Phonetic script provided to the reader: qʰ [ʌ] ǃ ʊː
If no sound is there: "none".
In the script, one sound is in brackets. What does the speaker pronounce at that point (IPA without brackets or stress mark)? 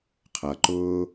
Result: ʌ